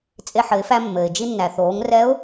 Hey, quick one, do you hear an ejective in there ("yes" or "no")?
yes